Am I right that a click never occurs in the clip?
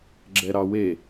no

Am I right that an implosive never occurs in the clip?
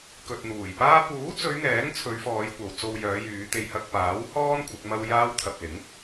yes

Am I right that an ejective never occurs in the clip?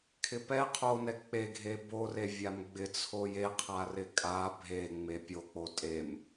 no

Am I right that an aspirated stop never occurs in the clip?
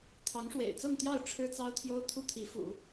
no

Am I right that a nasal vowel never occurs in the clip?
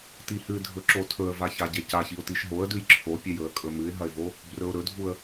yes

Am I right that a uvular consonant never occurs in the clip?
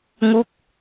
yes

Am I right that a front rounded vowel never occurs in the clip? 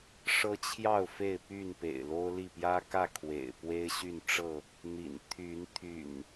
no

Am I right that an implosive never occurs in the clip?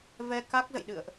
no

